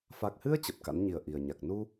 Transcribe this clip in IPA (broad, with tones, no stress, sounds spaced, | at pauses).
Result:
f a˨˩ k̚ h ɨ˧ ə̯ t͡ɕ ə˨˩ p̚ k a̰˧˥ n ɲ i˨˩ ə̯ ʔ i˨˩ ə̯ ɲ a˨˩ k̚ n u˧